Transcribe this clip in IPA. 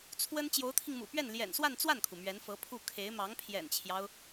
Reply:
t͡sʰwə˥n t͡ɕjo˧˥ʊ̯t̪ʰi˧ŋmṵ˨˩pɥɛ˥˩n ljɛ̰˨˩nswa˥˧n t͡swa˥˩nkʰu˩ mɥɛ˧˥nfɤ˧˥pʰu˥˩ kʰe˧˥ɪ̯ mɑ˧˥ŋpʰjɛ̰˨˩nt͡ɕʰjɑ˦ʊ̯

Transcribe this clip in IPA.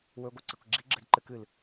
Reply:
wɵɡʷɨ ǀikʷɡ͡ǁiɡ͡ǁɨd ǃɨkɨl

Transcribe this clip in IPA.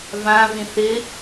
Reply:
vãvĩ θɪ

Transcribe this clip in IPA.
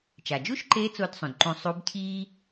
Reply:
t͡ʃa˩d͡ʒu˥ʃǃe˧˥ t͡so˧˥dsˤũ˩dǃũ˧ sˤu˧˥bcʰiː˥

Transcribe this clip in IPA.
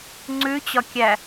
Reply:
ŋ͡ǀʉt͡ɕɒkʲæ

